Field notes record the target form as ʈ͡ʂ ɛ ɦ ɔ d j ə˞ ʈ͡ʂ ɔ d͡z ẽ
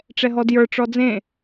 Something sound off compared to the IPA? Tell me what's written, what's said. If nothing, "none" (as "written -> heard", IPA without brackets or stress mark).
none